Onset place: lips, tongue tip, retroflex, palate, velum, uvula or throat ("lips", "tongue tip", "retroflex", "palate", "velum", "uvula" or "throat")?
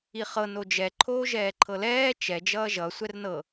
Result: uvula